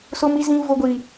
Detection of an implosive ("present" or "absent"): absent